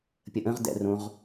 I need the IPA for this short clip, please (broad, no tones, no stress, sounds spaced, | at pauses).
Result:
pʲ ə ʔ ə̃ ʁ d ɛ̰ r õ ʁ